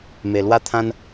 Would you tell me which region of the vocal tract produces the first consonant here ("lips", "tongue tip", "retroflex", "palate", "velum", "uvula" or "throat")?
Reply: lips